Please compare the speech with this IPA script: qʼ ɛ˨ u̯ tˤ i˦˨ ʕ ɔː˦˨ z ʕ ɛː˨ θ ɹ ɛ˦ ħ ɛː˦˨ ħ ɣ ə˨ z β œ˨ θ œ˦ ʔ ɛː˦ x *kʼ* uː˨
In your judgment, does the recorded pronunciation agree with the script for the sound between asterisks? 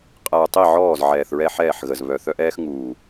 no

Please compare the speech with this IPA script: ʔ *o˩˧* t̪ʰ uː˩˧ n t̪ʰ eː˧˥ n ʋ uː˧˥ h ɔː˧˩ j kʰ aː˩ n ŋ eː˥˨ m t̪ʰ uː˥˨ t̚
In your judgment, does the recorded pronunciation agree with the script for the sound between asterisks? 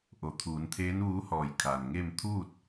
yes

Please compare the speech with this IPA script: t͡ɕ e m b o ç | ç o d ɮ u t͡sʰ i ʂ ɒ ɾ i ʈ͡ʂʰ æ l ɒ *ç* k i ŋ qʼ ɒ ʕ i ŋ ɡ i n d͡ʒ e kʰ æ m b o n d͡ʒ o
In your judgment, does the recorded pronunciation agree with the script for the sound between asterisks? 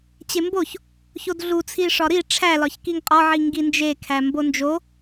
yes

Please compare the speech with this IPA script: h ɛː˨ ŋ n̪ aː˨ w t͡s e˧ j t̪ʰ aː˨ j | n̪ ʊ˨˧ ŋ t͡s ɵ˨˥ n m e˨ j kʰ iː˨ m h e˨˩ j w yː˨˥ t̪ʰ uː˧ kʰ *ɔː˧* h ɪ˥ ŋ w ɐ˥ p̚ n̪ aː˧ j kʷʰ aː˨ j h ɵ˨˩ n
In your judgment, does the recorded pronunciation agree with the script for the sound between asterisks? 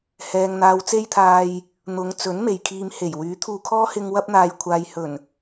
no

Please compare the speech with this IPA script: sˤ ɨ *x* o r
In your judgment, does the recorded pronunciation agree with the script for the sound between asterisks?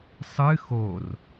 yes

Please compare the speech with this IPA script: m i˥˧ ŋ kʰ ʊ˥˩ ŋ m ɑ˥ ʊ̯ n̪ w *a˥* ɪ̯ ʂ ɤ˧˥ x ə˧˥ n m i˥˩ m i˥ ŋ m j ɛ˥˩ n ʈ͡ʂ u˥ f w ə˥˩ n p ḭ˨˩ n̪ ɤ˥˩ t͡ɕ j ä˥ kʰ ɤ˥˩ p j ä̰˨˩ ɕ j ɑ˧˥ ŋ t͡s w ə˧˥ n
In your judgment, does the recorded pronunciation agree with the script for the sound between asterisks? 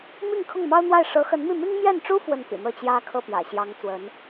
no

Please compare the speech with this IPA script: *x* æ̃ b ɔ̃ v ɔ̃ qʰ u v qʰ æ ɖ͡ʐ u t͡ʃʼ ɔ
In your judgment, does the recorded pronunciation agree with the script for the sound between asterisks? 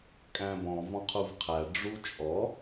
no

